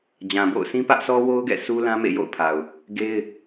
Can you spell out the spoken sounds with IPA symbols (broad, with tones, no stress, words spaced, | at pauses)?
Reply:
d͡ʑã˨bo̰˦˨ʊ̯ sĩ˦pä˦ʔsʰɔ˦wo˦ʊ̯ ɡɛ̰˦˨sʰu˦lã˦ mḛ˦˨jo̰˦˨ʊ̯pʰa˨ʊ̯ | ɡe˦ɪ̯